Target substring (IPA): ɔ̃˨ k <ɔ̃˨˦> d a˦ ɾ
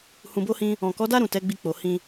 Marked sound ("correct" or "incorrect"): incorrect